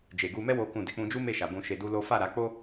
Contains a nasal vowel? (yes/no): yes